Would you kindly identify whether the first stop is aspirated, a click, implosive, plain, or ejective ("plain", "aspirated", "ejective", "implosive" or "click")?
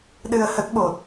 implosive